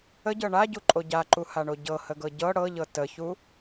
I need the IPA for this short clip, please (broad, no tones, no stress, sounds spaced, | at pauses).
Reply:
ə ɟ ɤ ɳ a ɟ u ǃʼ o ɟ a ǃ u h a ɳ o ɟ ɤ h ə ɡ ɤ ɟ ɤ ɽ ɤ ʎ ɤ t ə ç u